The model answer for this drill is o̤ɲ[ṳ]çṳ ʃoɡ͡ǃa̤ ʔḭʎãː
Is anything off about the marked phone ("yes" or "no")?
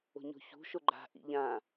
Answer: yes